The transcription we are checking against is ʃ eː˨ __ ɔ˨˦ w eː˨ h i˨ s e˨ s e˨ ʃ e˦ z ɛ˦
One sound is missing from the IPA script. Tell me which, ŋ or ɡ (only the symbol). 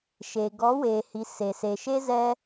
ɡ